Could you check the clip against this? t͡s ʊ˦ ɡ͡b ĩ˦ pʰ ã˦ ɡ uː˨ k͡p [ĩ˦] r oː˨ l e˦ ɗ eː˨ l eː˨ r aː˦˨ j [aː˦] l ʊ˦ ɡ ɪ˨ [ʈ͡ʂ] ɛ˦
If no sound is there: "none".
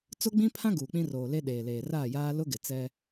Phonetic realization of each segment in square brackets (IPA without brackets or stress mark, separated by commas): ĩ˦, aː˦, t͡s